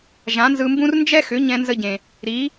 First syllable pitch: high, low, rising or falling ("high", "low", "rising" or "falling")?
rising